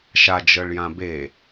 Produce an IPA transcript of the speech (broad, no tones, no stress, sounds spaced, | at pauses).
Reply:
ʃ a d͡ʒ ɤ ɭ j ã b e